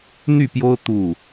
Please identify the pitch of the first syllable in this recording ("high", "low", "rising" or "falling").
falling